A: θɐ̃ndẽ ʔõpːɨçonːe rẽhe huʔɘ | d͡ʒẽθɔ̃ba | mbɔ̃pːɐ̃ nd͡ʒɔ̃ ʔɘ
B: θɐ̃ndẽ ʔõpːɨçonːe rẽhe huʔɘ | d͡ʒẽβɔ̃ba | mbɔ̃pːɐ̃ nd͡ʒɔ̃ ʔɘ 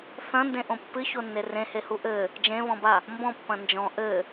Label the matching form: B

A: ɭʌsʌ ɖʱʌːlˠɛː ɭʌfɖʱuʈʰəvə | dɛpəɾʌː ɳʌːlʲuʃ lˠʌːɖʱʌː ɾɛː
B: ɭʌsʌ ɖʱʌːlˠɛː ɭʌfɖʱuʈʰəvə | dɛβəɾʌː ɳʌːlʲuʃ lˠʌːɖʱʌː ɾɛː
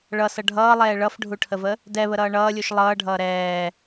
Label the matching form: B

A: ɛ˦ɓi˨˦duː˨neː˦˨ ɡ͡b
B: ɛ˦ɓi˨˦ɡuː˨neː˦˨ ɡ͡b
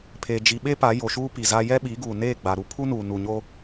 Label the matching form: B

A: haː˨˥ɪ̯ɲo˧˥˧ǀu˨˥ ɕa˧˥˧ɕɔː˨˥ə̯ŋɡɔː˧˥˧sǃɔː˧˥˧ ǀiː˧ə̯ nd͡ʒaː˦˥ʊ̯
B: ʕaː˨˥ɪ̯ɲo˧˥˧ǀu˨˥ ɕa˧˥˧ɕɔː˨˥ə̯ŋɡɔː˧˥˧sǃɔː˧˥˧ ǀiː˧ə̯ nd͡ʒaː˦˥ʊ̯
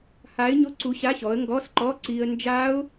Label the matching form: A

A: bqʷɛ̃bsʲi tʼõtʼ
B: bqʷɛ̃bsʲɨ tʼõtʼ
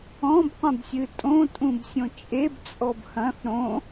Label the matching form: B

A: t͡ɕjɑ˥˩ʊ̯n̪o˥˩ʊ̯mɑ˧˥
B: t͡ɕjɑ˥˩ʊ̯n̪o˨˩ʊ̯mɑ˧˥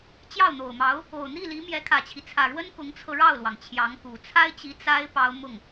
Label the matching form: B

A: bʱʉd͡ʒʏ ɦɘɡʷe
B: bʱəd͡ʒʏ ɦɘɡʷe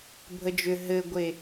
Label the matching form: B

